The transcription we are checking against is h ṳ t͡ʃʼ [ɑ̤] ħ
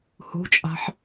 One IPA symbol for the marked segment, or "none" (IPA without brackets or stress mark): ɑ̤